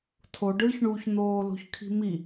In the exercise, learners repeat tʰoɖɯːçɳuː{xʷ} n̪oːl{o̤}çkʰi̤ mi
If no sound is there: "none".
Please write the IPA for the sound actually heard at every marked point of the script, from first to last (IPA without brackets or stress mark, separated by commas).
ç, o̤